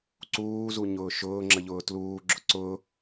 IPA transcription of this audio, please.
ǀuːzuɲʊː ʃʊːŋ͡ǁəʎʊː tluːɡ͡ǁʊ ǀʊː

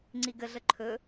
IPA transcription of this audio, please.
ŋ͡ǀiɡəɮə ǃʰɵ

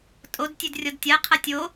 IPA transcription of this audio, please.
tʼod tʲʉdrʲɔdtʲaqʰa tʲo

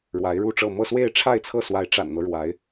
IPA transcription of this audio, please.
ɻwa˧˥ɪ̯ɻu˥˧ʈ͡ʂɤ˥˧ mɤ˥˧swe˥˧ɪ̯ʈ͡ʂʰa˥˧ɪ̯t͡sʰɤ˥˩ swa˧˥ɪ̯ʈ͡ʂa̰˨˩nn̪ɤ˦ ɻwa˧˥ɪ̯

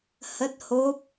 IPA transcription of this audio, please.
hə˦˥t̚ho˦˥p̚

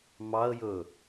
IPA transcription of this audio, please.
mɑə̯jɵ

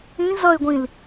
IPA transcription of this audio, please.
ĩ zʌɪ̯ɡʷĩl

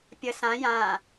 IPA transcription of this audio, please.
pʲə sã jã

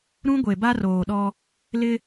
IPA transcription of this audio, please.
ɾũ˦ɡʷe˨ ba˦roː˨ɗɔ˦ | lɪ˦

